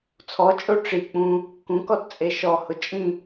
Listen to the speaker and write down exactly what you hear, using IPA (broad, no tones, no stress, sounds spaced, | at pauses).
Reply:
t͡sʰ ɔ t͡ʃʼ o ʈ͡ʂ i k͡p ũ | k ũ k ɔ t t͡sʼ e ʃ ɔ h ʊ t͡ʃʼ ĩ